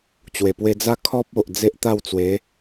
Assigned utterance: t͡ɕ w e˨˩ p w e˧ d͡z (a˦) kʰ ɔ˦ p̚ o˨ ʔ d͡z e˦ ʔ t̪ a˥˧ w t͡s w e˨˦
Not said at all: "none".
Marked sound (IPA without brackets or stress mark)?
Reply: a˦